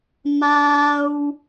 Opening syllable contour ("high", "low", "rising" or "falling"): high